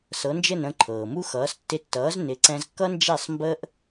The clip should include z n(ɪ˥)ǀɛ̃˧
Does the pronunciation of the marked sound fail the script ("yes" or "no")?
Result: yes